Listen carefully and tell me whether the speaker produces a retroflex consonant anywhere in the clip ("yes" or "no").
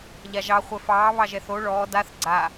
yes